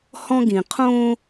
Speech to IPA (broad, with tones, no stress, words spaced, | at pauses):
hɔ̃˦ɡĩ˨ qʰõ˦